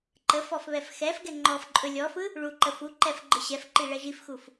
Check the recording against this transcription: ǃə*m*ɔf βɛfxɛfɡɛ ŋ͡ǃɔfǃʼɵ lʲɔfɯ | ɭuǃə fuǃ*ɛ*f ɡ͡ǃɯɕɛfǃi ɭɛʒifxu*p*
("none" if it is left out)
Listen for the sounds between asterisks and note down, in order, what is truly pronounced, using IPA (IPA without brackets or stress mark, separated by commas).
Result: f, ɛ, f